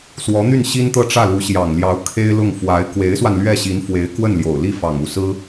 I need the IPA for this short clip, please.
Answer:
s w ɔ˧˥ n̪ y˥˩ n ɕ i˥ n t̪ ɤ˥˧ ʈ͡ʂ ä˥˩ l u˧˥ ɕ j ɑ˨˩ ŋ l j ɑ˧˥ ʊ̯ kʰ e˥ ɪ̯ l ʊ˥˩ ŋ f w a˧˥ ɪ̯ k w e˧˥ ɪ̯ s w a˧ n l ɥ ɛ˥˩ ɕ i˧˥ n f w e˧˥ ɪ̯ k w ə˥˩ n l j o˨˩ ʊ̯ l i˥˩ f ɑ˨˩ ŋ u˥˩ s ɹ̩˥

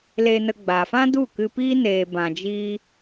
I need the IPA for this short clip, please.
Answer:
l e˧ n ə˧ ɡ͡b a˨ f ã˦ d u˦˨ k ɨ˧ p i˦ n eː˧ b ã˧ d͡ʒ iː˦

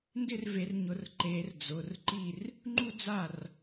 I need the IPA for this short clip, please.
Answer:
n d ɪ˥˨ r v e˨˩˦ r ɲ ʊ˨˩˦ r ǃ e˨˩˦ r d͡z ʊ˩˧˩ r ǃ i˥˨ r | ŋ͡ǃ u˥ d͡z a˥˨ r

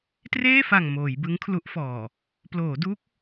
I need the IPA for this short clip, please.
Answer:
t r eː˥˩ f a˨˩ ŋ m oː˩˦ j b ɯ˦˥ ŋ kʰ l u˦˥ ʔ f ɔː˨˩ | p l oː˩˦ d u˦˥ k̚

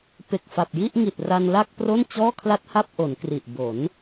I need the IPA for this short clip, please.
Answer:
p e˨˩ k̚ f a˨˩ p̚ j i˥˩ ʔ ŋ i˨˩ t̚ r a˧ n l a˥˩ k̚ p r o˥˩ n t͡ɕ ɔː˥˩ kʰ l a˥˩ t̚ h a˥˩ p̚ ʔ o˩˦ n k r i˨˩ ʔ b o˩˦ n

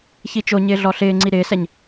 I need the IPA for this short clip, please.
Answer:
ç i t͡ʃ o ɲ ɪː ɮ ɔ ɬ ɪː ŋ͡ǀ i ɾ ɪː s ɛ ɲ

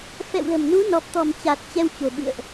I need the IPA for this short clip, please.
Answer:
f ɛ̰˧˨ w l ə̤˨˩ m n u˨˦ n ɔ˨˩ p̚ t̪ ɔ̤˨˩ m t͡ɕ a˨˩ t̚ t͡ɕ ɛ˧ w t͡ɕ o̤˨˩ ɓ ɨ̰˧˨ ə̯ ʔ

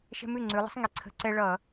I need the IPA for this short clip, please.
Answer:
ʃ ɛ̤˦ m ʉ˥˩ ŋ͡ǀ ʉ˩˧ lˠ ə̤˩˥ sˤ ŋ i˩˥ ǀʰ ə̤˧˩˧ ǀ ɛ˦ ɭ ʌ˧˩˧

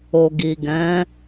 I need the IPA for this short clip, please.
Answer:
o˨ ɡ i˨ ɡ ɛ̃˨˦

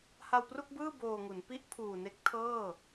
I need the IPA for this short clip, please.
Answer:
h a˧ w p r u˥˩ k̚ b ɯː˥˩ b oː˧ ŋ u˩˦ n p i˦˥ ʔ pʰ uː˨˩ n e˦˥ k̚ tʰ ɤː˥˩

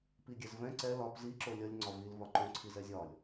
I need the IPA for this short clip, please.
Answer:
p i ɡʲ ɛ z v ɛ̃ ǀ ɛ l ɒ p z i ǁ o lʲ ʌ lʲ ŋ͡ǀ ɒ v i l v ɒ ǃ õ ǀʰ i z ɛ zʲ ɒ lʲ

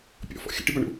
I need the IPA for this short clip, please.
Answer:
pʲ ɔ̰ f ɔ̰ xʲ ə̰ ʈ i b a ɳ ṵ

